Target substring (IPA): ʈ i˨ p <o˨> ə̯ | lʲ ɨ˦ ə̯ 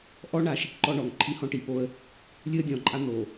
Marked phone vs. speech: incorrect: o˦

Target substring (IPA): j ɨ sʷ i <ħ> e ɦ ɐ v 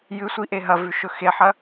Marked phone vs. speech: incorrect: ʔ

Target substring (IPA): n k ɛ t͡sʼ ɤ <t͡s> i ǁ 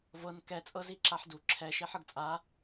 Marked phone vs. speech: incorrect: z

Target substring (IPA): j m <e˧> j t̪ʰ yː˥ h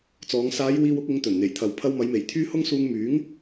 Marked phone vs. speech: incorrect: e˨˩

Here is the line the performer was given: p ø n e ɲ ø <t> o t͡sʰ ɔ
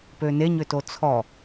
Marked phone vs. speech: correct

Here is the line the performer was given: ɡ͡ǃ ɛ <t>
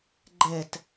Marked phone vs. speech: correct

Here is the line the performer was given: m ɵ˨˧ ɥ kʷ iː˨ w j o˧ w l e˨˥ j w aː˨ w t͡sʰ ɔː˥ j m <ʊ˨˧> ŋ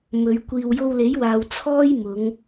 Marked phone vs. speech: correct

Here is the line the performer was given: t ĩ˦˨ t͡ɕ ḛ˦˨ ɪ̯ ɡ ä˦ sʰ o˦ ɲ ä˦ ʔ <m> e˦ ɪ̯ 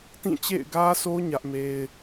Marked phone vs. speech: correct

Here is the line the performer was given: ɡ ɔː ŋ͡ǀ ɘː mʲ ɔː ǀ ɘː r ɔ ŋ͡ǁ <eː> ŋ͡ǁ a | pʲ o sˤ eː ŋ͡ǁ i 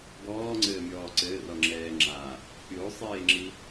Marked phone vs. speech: incorrect: ɛː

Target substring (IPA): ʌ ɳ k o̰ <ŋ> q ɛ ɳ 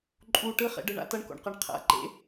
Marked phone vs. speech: incorrect: ɳ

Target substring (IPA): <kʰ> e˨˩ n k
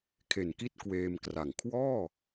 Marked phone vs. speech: correct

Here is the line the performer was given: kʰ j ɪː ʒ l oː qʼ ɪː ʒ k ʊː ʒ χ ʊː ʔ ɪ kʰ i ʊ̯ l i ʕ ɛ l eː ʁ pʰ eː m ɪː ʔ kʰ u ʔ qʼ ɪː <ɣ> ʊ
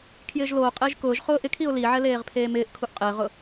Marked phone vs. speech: incorrect: ʁ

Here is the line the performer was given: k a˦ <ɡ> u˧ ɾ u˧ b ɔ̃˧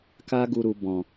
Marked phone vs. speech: correct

